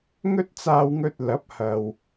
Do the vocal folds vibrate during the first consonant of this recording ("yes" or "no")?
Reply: yes